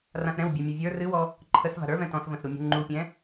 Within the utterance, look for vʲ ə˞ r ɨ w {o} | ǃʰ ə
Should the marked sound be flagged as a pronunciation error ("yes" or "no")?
yes